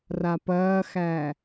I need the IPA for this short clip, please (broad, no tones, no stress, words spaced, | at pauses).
rapɐːxæ